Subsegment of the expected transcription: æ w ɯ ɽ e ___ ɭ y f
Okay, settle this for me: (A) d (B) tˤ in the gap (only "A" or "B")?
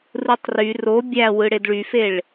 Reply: A